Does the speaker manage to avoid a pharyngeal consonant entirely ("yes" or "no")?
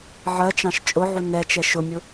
no